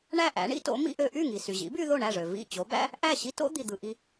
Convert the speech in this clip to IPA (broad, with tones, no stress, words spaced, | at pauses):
ɳæ˥˩ʔæ̰˩˥ɳḭ˥to̰˩˥ mḭ˧ʔø˧ʔy˥˩ŋi˩ sy˩ʑḭ˩˥by˧ ðo˥˩ ɳæ˥˩ʐø˩ vḭ˥˩ t͡ɕo˩˥bæ̰˥ | ʔæ˥˩ɕi˥to̰˥ d̪i˩d̪ɯ˩ ʔi˧